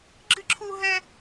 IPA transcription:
ɡ͡ǁɨ˥ǁʰu˥ɦɛ˥

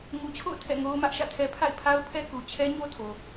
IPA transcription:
ŋu˨t͡ɕʰo̰˦˨ʊ̯ tʰɛ̰˦˨ŋo˦ʊ̯mä˦ʔ ʃä̰˦˨tʰɛ˦ pʰa̰˦˨ɪ̯pʰa˦ʊ̯pʰɛ˦ ku˨ t͡ɕʰɛ˦ɲo˦tʰo˨

